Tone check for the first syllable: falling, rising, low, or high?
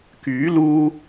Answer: rising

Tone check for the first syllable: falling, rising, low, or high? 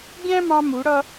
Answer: high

